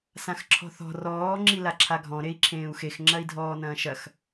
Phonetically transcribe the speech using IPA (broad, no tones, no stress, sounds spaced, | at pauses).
s ã x ǁʰ ɔ̤ θ ɔ̤ r ɔː ŋ͡ǁ i l a ǁʰ a ɡʱ ɔ̃ ɾ e i̯ ǁʰ ẽː u̯ x e x ŋ͡ǁ ɐ i̯ dʱ ɔː n ɐ̃ː ʃ ɐ x